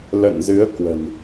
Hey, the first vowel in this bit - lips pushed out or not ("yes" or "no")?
no